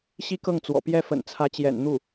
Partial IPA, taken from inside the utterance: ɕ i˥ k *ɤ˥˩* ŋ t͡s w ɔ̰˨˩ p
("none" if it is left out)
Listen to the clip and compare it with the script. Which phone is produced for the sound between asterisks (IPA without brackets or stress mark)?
ɤ˥˩